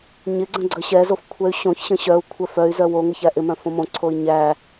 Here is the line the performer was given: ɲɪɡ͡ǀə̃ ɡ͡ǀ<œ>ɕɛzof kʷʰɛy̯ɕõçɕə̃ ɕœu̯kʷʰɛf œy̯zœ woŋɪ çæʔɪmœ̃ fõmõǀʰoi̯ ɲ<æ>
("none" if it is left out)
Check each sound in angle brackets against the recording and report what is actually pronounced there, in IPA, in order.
ə, æ

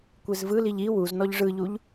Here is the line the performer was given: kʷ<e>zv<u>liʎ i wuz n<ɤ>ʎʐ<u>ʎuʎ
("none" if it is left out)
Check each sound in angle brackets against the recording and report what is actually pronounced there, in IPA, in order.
e, ɯ, ɔ, ɯ

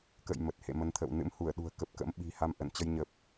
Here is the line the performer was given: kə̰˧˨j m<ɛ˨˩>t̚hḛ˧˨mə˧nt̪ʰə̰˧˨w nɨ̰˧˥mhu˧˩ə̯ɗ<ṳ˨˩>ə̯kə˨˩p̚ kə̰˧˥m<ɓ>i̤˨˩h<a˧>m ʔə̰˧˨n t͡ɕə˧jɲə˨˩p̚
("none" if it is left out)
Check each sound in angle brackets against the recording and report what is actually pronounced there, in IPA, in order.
ə˨˩, ṳ˨˩, ɓ, a˧

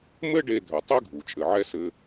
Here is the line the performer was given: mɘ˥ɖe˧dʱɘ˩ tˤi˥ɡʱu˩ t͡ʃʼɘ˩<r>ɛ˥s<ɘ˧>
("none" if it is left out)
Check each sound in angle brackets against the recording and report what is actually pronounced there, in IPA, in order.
ʕ, ɘ˧

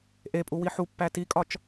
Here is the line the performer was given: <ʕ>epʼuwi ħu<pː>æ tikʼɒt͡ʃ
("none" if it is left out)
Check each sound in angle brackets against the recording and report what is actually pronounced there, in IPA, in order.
ʔ, pː

